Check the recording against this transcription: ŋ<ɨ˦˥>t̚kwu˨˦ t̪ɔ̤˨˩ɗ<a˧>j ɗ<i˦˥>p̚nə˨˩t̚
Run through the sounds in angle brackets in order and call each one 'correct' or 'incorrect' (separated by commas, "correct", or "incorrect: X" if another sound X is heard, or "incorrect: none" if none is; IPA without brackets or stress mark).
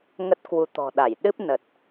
incorrect: ə˦˥, incorrect: a˧˩, incorrect: ɨ˦˥